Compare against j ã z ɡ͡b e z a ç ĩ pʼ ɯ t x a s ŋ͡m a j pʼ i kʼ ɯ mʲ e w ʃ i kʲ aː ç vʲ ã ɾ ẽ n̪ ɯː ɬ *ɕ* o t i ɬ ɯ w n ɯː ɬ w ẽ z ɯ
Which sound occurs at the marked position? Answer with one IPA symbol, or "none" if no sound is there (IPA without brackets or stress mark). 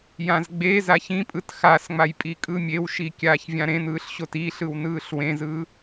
ɕ